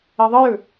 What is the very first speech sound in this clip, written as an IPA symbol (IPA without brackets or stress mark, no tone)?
e